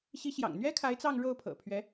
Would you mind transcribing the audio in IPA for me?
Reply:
ɕ i˧˥ ɕ j ɑ̰˨˩ ŋ n̪ ɥ ɛ˥ kʰ a˧˥ ɪ̯ t͡s ɑ˥˧ ŋ ɻ o˥˩ ʊ̯ pʰ ɤ̰˨˩ pʰ ɥ ɛ˧˥

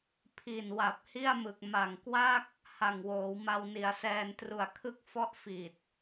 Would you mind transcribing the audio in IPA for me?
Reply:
pʰ i˨˩ n w a˨˩ p̚ h i˥˩ a̯ m ɯ˨˩ k̚ m a˨˩ ŋ k w a˥˩ k̚ | h a˨˩ ŋ w oː˩˦ w m a˧ w n i˩˦ a̯ s ɛː˧ n t r u˨˩ a̯ kʰ ɯ˦˥ k̚ f ɔ˦˥ ʔ f i˨˩ t̚

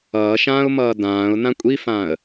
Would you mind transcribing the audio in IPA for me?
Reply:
ʌː ʃ ãː ʊ̯ m ʌː d ãː ʊ̯ n ã kʷʼ i f ãː ə̯

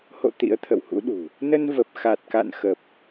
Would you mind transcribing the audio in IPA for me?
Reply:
h o̰˧˨ t̪ ḭ˧˥ ə̯ t̪ʰ ə̰˧˨ w h ṵ˧˥ ɗ ṳ˨˩ | n ə˧ n v ə˨˩ p̚ x a˨˩ t̚ k a̰˧˨ n x ə˨˩ p̚

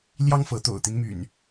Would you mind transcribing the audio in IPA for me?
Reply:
l j ɑ˦ ŋ f ɤ˨˦ t̪ o̰˨˩ ʊ̯ t̪ i˦ n m y̰˨˩ n

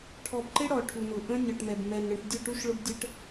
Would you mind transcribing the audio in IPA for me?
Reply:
ʈʰ ɔ˨ b ǃ ɪ˦ ɽ ɔ˨ ʈʰ u˨ n ʊ˨ ʔ ə̃˦ nʲ ɔ˨ ʈ m ɛ˨ b m ɛ˨ n ɽ ə̃˨ ʈ dʲ ʊ˦˨ ʈ u˦ ʃ ɭ ʊ˦ b dʲ ə˦ ʈ

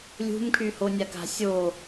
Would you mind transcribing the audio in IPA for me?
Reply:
lʲ ṳ m kʰ y h o nʲ a k a̤ sʲ o

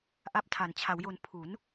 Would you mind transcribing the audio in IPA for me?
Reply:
ʔ a˥˩ p̚ tʰ a˨˩ n t͡ɕʰ a˩˦ w j o˧ n pʰ u˩˦ n

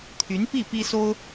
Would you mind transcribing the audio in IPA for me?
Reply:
t̪ʰ y˧˥ n p i˥˩ p i˥ s o˥ ʊ̯

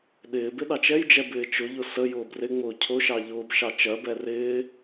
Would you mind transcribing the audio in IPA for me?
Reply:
ɗ ɪː b ɪ ɗ ɑ t͡ʃ ɛ j d͡ʒ ɛ b ɪː t͡ʃ ʊ ʎ ʊ s ə j ʊː b r ɪ ŋ͡m ʊː cʰ ʊ ʃ ɑ ʎ ʊː b ʃ ɑ t͡ʃ ɜ b ɛ r ɪː

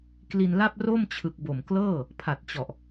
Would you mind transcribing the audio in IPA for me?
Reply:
k l i˧ n l a˥˩ p̚ r o˥˩ m t͡ɕʰ ɯ˨˩ k̚ b o˨˩ m k l ɤː˥˩ | pʰ a˨˩ t̚ t͡ɕ ɔ˨˩ ʔ

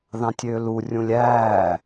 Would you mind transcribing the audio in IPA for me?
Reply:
ð ɑ̃ tʲ øː l u rʲ ũ lʲ æː

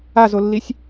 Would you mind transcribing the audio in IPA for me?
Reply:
a z o lː i sʲ

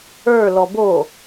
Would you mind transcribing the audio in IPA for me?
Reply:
ə˞ l ɔ b o

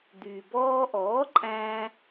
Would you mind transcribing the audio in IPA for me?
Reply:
d̪ yː˩ b ɔː˧ ʔ ɔː˩˥ ǃʼ æ̃ː˧

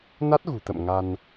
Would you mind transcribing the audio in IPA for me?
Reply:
n a˦˥ t̚ ɣ ṳ˨˩ t̪ ə̰˧˨ m ŋ a˧ n

